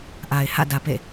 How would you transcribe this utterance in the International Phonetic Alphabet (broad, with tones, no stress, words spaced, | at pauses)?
ʔa˨ɪ̯hä̰˦˨dä˨ pḛ˦˨